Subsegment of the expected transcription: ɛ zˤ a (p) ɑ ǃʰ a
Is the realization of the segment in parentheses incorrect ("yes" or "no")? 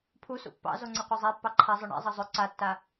yes